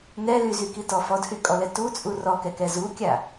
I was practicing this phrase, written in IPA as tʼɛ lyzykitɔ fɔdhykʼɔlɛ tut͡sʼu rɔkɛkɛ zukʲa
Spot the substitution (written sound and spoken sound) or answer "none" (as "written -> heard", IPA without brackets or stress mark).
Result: tʼ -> n